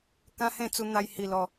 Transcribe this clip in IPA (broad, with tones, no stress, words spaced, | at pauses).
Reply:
kã˦hẽ˥˧ t͡su˧n̪a˧j hi˧lɔ˧